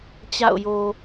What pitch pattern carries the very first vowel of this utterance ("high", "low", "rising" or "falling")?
falling